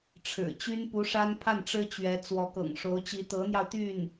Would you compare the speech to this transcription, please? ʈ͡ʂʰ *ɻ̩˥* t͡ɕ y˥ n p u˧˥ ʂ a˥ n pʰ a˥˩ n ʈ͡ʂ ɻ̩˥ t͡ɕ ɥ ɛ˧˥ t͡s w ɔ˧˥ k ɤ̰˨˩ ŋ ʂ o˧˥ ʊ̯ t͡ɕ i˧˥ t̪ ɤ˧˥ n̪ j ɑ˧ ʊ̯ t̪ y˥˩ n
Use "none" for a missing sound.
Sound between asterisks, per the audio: ɻ̩˨˩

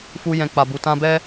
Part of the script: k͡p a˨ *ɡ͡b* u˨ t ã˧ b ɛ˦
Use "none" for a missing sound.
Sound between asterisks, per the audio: b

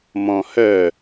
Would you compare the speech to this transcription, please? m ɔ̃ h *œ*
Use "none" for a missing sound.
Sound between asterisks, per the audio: œ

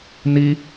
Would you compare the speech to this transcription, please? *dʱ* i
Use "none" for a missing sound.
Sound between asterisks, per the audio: n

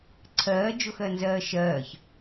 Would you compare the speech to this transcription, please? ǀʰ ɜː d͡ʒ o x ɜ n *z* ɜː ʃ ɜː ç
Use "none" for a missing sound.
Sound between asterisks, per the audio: z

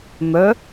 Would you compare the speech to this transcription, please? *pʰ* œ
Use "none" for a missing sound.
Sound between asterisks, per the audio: m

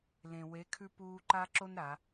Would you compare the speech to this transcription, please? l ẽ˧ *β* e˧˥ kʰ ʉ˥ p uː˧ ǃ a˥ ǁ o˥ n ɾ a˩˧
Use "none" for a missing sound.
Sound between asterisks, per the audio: w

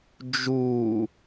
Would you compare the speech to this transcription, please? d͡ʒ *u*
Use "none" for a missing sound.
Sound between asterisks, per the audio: u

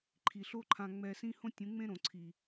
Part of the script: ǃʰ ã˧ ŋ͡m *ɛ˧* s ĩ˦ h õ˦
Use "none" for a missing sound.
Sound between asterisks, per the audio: ɛ˧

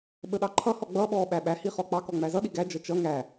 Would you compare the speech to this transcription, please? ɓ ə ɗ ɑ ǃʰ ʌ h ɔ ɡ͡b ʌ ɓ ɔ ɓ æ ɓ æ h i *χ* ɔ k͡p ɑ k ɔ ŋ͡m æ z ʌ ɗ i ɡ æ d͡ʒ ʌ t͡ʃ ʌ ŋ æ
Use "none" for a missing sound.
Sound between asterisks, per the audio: χ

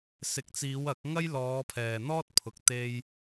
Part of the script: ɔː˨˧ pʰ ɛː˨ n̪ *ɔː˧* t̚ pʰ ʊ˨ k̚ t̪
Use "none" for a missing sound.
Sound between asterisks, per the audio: ɔː˥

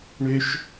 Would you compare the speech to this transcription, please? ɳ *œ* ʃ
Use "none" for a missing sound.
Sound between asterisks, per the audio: ø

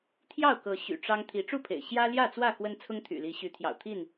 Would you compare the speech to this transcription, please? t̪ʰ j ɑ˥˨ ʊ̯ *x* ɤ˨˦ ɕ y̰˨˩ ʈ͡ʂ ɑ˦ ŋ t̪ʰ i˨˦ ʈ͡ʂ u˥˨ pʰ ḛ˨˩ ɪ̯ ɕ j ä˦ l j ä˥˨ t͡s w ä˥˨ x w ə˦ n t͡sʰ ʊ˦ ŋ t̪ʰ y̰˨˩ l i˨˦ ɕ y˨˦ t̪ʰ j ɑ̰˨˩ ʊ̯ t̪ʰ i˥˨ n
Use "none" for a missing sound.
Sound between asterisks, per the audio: k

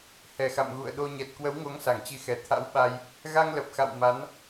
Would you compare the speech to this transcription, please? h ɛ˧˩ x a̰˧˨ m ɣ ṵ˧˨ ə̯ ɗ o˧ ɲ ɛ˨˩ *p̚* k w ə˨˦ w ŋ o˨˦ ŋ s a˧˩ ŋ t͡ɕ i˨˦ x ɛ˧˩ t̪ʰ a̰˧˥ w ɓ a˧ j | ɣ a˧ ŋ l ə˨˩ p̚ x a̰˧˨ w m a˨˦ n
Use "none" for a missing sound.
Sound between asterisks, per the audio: t̚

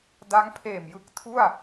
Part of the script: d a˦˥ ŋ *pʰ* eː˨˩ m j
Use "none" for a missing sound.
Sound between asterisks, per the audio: pʰ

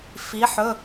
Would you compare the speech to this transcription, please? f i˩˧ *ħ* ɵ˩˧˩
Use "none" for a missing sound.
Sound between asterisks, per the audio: ħ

